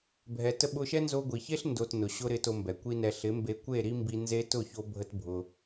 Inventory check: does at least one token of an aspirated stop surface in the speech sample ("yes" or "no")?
no